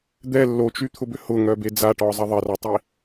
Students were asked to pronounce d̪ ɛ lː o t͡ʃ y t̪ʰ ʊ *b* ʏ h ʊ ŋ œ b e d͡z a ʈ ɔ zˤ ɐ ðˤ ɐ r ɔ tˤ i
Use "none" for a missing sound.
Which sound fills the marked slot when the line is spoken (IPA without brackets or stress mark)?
b